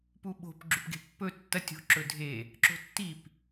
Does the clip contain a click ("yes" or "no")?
yes